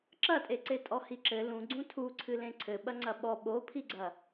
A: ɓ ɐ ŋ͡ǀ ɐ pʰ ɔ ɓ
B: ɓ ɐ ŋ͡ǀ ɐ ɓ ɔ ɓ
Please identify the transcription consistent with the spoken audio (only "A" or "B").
B